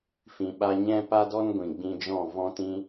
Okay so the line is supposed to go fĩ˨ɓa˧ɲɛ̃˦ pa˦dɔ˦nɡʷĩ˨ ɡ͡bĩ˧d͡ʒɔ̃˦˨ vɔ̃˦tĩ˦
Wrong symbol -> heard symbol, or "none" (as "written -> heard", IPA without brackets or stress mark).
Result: none